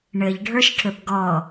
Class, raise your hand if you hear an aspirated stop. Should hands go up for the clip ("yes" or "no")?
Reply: yes